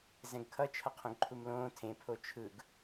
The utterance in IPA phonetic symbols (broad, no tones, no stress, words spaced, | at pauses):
zɛ̃ɡkʰʌ t͡ʃʰʌqʰõɡǃʰumlõː tʰẽ pʰot͡ʃʰɯɡ